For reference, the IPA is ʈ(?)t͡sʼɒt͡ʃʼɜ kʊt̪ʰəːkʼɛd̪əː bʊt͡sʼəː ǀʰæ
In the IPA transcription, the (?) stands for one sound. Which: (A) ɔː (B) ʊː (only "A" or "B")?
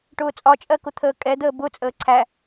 B